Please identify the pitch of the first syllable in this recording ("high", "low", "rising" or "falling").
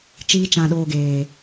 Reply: high